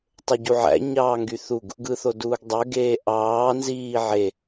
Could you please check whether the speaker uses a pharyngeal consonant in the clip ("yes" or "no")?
yes